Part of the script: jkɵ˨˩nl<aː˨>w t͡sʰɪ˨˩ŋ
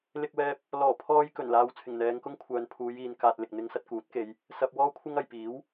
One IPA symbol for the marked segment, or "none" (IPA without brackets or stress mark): aː˨